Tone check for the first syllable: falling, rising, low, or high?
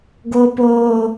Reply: high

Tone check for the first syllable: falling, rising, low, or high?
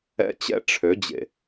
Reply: high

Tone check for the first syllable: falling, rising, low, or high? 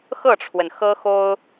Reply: falling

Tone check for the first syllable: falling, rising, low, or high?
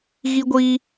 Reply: high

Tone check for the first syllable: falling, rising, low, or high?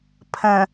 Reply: low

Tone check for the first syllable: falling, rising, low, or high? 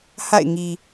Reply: falling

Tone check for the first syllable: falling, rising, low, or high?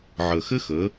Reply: low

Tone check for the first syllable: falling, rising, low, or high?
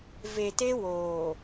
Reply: low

